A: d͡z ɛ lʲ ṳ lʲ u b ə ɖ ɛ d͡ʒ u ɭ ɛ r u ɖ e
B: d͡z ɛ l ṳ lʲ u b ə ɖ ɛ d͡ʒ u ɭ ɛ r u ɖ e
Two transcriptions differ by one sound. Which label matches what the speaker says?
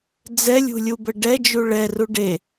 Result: A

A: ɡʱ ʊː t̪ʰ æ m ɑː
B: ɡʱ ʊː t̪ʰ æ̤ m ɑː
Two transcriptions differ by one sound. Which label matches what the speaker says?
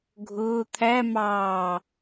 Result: A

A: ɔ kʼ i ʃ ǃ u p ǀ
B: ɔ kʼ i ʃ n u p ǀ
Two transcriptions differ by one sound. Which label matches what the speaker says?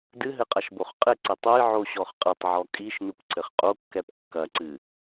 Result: B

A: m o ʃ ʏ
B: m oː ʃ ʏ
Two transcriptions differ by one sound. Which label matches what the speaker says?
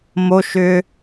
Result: A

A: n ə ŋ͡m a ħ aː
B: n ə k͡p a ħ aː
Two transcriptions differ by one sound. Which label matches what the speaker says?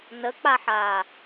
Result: B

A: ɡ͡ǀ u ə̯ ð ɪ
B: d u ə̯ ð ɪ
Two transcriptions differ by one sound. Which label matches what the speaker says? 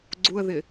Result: A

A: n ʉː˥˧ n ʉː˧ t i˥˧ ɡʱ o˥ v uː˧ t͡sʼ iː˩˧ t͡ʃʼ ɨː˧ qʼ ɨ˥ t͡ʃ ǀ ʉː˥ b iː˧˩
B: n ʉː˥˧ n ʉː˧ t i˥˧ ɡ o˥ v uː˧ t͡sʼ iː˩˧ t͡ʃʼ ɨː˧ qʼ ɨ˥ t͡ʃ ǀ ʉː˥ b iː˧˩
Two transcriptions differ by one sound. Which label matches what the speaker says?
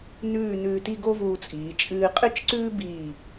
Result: B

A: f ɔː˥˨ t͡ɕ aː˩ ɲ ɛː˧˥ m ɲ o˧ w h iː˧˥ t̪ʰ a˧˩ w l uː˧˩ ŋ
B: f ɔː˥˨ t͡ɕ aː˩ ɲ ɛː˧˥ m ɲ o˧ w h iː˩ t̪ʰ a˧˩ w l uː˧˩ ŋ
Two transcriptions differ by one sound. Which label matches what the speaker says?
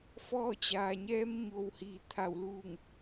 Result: B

